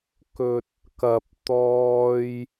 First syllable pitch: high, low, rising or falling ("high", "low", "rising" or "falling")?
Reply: low